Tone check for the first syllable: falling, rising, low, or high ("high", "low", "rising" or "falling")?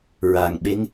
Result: low